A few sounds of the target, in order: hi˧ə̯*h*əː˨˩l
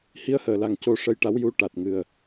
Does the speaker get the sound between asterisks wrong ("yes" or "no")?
no